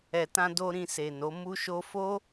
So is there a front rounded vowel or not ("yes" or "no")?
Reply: no